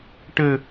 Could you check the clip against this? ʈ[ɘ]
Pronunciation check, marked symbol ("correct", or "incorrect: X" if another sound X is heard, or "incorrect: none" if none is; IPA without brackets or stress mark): correct